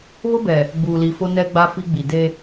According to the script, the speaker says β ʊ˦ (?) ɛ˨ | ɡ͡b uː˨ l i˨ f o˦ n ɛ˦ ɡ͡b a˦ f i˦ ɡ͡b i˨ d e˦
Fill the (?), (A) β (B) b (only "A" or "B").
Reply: B